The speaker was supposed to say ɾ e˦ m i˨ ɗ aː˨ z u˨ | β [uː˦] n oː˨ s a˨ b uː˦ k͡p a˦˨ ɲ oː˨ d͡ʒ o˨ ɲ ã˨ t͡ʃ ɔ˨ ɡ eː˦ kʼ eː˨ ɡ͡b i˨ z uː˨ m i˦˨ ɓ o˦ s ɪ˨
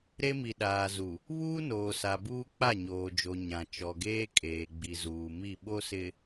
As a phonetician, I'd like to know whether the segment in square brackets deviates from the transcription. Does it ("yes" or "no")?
no